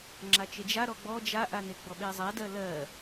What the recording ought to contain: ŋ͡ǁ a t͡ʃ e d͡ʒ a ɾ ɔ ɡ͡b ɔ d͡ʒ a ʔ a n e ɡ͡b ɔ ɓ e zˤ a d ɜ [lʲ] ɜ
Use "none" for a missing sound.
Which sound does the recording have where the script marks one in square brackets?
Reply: l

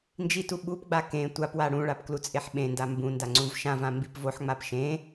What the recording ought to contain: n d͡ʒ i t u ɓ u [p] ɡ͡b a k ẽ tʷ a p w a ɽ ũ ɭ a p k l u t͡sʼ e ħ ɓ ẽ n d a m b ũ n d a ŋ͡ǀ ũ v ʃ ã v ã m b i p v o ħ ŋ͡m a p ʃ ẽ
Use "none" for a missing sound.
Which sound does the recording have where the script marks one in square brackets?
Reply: p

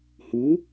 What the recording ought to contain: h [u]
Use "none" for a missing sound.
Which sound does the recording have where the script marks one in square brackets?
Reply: u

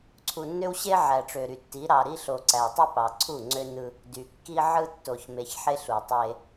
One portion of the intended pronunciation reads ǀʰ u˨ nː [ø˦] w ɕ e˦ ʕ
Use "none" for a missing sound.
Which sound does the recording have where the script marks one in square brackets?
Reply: ø˦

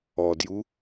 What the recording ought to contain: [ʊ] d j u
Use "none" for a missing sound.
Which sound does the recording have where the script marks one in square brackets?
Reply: ɔ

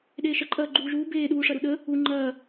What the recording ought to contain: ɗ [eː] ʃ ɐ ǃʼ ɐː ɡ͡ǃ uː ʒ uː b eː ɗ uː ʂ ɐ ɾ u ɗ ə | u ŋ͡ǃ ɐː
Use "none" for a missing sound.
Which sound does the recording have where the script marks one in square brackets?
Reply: eː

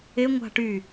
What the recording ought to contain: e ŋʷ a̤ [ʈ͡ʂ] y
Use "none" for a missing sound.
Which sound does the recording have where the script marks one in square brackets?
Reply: ʈ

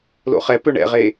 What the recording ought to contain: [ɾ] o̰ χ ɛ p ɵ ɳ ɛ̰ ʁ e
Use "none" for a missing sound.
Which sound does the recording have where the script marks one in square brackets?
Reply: l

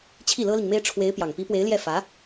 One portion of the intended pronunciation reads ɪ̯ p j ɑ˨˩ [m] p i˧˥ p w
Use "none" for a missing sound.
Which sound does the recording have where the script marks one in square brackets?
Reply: ŋ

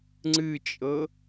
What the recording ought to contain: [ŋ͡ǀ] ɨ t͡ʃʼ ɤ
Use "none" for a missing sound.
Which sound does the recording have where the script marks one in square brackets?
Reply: ŋ͡ǀ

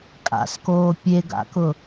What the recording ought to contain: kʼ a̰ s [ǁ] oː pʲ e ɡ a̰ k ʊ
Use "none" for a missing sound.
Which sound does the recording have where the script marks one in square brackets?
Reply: k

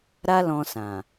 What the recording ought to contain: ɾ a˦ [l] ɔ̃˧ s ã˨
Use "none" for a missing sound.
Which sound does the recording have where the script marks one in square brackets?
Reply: l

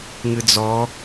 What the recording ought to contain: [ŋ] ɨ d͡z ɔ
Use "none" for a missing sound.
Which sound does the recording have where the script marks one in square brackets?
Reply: ŋ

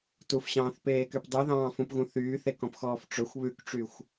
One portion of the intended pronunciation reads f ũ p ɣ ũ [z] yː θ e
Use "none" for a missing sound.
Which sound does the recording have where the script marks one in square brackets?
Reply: θ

